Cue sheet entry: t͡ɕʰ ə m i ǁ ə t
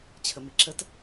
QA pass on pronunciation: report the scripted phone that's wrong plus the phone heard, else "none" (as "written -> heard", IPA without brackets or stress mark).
none